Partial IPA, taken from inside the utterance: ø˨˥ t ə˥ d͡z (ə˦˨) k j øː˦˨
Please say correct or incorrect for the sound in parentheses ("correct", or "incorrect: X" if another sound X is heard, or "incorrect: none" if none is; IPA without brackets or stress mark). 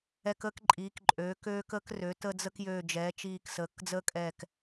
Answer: incorrect: ə˥